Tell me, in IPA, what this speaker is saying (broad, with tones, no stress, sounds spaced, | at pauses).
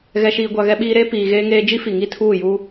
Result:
ɣ ɛ˨ ʃ iː˨ ɡʷ a˨ ɣ ɛ˦ ɓ iː˦ ɾ eː˦ p iː˨ ɣ eː˦ ŋ eː˦ d͡ʒ i˦ f i˨ ŋ i˦ tʰ uː˦˨ j uː˦